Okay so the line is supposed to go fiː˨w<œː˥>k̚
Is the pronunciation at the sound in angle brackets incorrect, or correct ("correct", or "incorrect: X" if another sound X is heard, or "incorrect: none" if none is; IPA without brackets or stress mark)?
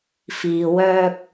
incorrect: œː˧